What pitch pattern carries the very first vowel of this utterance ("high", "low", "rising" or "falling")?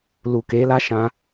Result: low